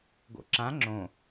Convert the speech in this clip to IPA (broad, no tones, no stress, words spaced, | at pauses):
ɡo̰ǁã ŋ͡ǁõ